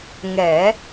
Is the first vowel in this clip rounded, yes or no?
no